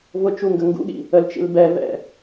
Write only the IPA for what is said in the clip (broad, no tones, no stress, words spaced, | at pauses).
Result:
vʊt͡ʃuŋɡə ŋɡṵɠḭ | əlt͡ʃḭl bɛvɛ̰